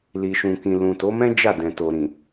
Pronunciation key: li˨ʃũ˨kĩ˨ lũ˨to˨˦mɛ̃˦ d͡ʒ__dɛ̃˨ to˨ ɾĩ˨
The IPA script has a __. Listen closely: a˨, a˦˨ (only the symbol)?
a˦˨